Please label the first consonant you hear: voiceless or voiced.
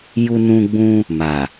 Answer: voiced